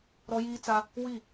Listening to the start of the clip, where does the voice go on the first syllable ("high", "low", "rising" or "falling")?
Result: high